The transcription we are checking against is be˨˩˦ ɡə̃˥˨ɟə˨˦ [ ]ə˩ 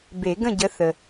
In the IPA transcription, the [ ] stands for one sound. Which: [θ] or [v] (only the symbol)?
θ